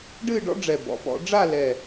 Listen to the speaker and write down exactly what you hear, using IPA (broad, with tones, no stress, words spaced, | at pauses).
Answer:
ɖɨː˥˧ɖɔ̰˥ ɖ͡ʐɛ˧˩ bɔ̰˩˧pɔ̰˩˧ ɖ͡ʐa˥˧ lɛ˧˩